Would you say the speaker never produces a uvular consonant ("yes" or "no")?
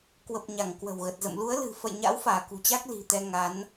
yes